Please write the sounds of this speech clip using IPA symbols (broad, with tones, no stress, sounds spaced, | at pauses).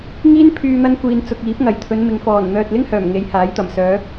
ŋ iː˥ n pʰ yː˧ n̪ ɐ˥ n kʷ iː˨ n t͡s ʊ˨ k̚ iː˨˥ p̚ ŋ ɐ˨˩ j t̪ʰ ɵ˨˧ n m ɪ˨ ŋ f ɔː˨˩ n n̪ œː˨ t̚ l ɪ˥ ŋ h œː˨˩ m ŋ e˨˧ j h aː˨˥ j t̪ ɐ˨˩ m s œː˨˧